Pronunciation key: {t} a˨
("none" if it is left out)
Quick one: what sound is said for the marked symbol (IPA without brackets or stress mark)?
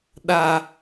ɗ